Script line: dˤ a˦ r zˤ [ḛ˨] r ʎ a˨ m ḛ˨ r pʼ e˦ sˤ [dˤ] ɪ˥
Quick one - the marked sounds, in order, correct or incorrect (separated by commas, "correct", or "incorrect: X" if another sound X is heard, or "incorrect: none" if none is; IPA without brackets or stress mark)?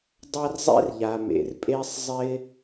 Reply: incorrect: ḛ˦, incorrect: zˤ